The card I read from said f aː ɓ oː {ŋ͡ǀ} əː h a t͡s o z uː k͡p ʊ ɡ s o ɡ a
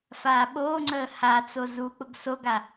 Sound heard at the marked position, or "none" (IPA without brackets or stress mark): ŋ͡ǀ